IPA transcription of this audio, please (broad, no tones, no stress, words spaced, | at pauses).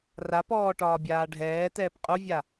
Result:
rapɔː ʈɒːbʲaːɖʱɛːtɛːp qʼuvʲa